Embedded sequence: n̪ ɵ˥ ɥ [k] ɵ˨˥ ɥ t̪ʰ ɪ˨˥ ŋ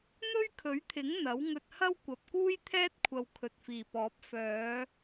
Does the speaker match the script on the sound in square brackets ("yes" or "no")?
no